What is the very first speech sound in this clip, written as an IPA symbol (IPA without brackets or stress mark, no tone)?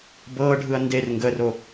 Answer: b